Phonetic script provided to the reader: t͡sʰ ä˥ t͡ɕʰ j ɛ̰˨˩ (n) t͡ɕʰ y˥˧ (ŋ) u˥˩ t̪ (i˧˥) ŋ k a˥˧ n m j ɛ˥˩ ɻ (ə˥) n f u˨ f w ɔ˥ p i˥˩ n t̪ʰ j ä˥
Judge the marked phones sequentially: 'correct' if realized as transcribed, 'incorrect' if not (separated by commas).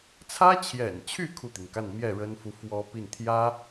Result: correct, incorrect, incorrect, correct